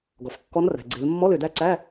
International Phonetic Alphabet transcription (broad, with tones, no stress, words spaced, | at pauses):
ɡɔ˩f kːɔ˧˥nræ̤˩ ɡ͡ǀe˩˧l mːɔ˧˥˧lø˩ dæ˥˨ǀæ˧˥˧